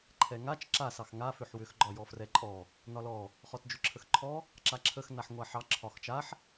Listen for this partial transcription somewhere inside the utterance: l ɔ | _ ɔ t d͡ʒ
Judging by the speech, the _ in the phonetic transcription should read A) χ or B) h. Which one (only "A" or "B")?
A